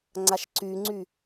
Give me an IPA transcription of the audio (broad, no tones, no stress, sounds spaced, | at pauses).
ŋ͡ǀ a ʃ ǀ y ŋ͡ǀ y